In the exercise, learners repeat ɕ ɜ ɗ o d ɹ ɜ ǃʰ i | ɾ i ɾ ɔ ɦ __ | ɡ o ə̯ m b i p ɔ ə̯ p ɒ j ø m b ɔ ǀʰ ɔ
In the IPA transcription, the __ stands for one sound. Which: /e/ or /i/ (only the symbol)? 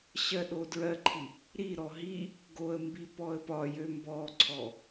i